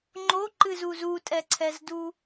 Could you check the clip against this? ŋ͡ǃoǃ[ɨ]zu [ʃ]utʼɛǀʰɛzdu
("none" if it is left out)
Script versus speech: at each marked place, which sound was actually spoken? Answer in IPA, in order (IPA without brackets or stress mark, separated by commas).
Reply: ɨ, z